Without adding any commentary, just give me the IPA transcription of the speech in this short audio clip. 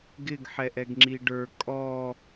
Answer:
ɡ ɪ ɡ ħ ɛ ʔ ɛ ɡ ŋ͡ǁ i ɖ ə˞ kʼ ɔ

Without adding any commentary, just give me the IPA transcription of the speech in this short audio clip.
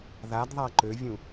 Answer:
ð a d ðˤ a ǃ ø vʲ ũ

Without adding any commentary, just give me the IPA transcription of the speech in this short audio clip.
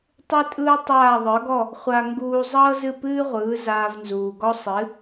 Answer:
tˤ ɯ˥ tʼ ɯː˥ tˤ aː˥˩ ðˤ ə˞˩˥ ɡ ɔ˥˩ | χʷ a˧ ŋ ɡ uː˧ zˤ ɤː˥ z ɨ˥˩ p ɨː˥ ʁʷ ɯː˩˥ z aː˧ v n z uː˩ ɡ ɔ˥ sˤ ɨ˩˥

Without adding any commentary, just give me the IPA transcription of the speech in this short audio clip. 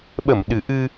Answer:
ɓ ə˧˩ m ɗ ɨ˨˩ ʔ ɨ˧

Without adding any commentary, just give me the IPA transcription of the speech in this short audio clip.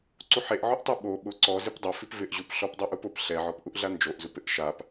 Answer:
ǀ u ħ e ʔ ʕ ʊ ʔ tˤ i ɓ o ɓ ʊ ǀ ɔ z ɪ p dˤ ʊ f i p v ɪ ʔ ʑ u p ɬ ɔ p dˤ ɛ ʔ u p ʊ p ɬ ɛ ʕ ɔ p ʔ u ʔ ɮ a n d͡ʒ o ʔ z u p ɪ ʔ ʃ a p

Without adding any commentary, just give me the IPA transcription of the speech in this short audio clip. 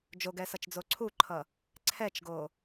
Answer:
d͡ʒ o ɡ ɛ s ʌ t͡ʃ d͡z o ǀʰ u ǃʰ ʌ | ǀʰ ɛ t͡ʃ ɡ o

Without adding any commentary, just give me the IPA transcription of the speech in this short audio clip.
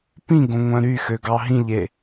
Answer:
p ĩ ɡ õ ŋʷ œ̃ ɾ y x ø ɡ ɑ ɦ ĩ ʎ e

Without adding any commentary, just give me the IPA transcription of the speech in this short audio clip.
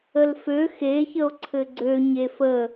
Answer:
ə l f ø x e ç ə o̯ ǀʰ ɘ ɡ͡ǀ ø ɲ e f ə

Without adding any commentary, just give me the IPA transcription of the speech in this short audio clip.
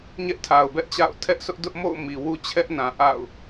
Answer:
ɲ ɛ˦ ʔ tʰ a˨ ʊ̯ b ɛ˦ ʔ t͡ɕ a̰˦˨ ʊ̯ tʰ ɛ˦ ʔ sʰ ʊ˦ ʔ d ʊ˦ ʔ m o̰˦˨ ʊ̯ m i˨ w u˦ t͡ɕʰ ɛ˦ ʔ n ã˨ ʔ a̰˦˨ ʊ̯

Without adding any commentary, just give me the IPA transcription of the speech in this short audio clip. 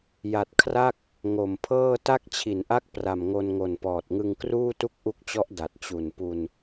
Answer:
j a˨˩ t̚ kʰ r a˥˩ k̚ | ŋ o˨˩ m pʰ ɤː˥˩ t a˥˩ k̚ t͡ɕʰ i˩˦ n ʔ a˥˩ k̚ p r a˨˩ m ŋ o˧ n ŋ o˨˩ n p ɔː˨˩ t̚ ŋ ɯ˧ ŋ k r uː˥˩ t u˥˩ k̚ ʔ u˦˥ k̚ t͡ɕ ɔ˦˥ ʔ d a˨˩ t̚ t͡ɕ u˨˩ n p u˧ n

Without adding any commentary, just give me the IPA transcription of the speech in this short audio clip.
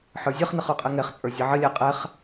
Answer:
ħ ə˞ zʲ ʌ χ n ə χ ə˞ qʼ ɛ ŋ ɛ χ t͡sʼ ə˞ zʲ ɛ ʕ ə lʲ a qʼ ɛ χ

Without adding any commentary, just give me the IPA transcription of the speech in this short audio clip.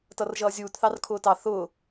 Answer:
t ʌ r ʒ ʌː zʲ uː t θ ɑ r kʰ ʊː t ɑ θ ʊː

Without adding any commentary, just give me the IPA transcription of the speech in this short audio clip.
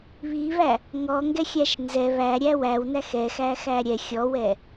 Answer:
β i β æ | ŋ ɔ ŋ ɡ ɛ xʲ æ ʃ n z ɛ β æ ɾʲ æ w æ w n æ x ɛ x æ x æ ɾʲ ɛ xʲ ɔ w ɛ

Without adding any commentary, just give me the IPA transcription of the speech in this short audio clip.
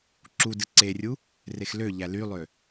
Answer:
ǁ u d ɯ ǀ e rʲ u | r e x l ø ʎ æ l y lˠ ø

